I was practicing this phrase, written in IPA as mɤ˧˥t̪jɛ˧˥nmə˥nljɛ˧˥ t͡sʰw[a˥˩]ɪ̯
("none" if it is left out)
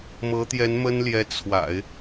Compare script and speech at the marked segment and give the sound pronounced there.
a̰˨˩˦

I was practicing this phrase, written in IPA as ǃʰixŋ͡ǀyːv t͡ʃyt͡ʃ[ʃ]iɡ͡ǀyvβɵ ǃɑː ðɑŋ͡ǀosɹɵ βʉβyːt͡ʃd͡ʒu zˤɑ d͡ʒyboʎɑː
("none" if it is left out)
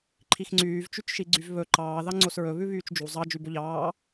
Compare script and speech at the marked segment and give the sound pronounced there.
ʃ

